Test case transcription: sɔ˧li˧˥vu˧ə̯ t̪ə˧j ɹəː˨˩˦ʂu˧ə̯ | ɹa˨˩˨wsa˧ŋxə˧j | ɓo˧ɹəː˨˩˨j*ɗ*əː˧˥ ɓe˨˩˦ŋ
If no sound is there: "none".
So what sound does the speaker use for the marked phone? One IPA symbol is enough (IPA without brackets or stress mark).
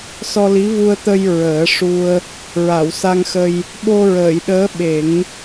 ɗ